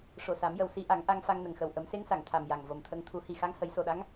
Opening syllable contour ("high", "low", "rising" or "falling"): low